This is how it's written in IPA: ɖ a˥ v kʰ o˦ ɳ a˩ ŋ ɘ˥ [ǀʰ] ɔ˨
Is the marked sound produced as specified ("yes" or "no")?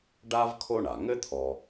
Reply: no